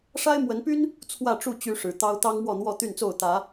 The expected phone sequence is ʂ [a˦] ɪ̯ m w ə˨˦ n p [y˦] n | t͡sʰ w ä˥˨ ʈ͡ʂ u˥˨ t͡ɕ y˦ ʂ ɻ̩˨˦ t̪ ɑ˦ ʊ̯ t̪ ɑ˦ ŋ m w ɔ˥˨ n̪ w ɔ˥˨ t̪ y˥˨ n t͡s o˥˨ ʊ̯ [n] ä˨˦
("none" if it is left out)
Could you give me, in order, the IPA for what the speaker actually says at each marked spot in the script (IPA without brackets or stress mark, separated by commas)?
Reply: a˦, y˦, t̪